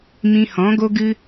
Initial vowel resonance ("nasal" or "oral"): nasal